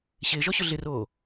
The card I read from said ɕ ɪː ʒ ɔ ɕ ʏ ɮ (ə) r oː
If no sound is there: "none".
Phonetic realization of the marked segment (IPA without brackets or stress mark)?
ɪ